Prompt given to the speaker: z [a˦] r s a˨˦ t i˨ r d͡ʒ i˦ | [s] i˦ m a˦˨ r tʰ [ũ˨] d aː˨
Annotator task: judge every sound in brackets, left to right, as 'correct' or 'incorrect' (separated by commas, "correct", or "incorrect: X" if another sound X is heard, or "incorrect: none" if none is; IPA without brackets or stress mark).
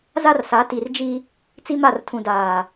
correct, incorrect: t͡s, correct